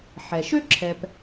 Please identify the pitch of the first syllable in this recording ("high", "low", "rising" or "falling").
low